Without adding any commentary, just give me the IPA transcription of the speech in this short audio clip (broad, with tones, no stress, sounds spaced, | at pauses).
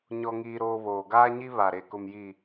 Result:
ɲ ɔ˦ ŋ iː˦ ɾ oː˦ β oː˨ ɡ aː˦ ɲ i˦ β a˨ ɾ e˨ k ʊ˨ m j i˨